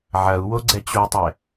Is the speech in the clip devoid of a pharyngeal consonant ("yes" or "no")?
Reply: no